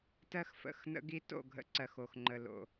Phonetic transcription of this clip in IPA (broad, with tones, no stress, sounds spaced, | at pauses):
t ɜ˦ x f ə̰˦˨ x n ə̰˦ ɡ i˦ t o̰˦˨ ɡʱ ə̰˦ ǀ ɜ˨ x o˨ x ŋ͡ǃ ə˨ l o̰˨